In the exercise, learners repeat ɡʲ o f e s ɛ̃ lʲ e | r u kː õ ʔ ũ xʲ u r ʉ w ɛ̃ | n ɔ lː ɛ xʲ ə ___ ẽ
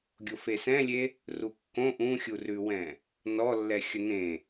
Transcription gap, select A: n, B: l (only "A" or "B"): A